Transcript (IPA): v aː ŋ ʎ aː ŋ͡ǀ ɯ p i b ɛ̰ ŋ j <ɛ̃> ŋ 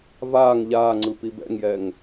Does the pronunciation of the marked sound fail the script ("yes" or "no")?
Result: yes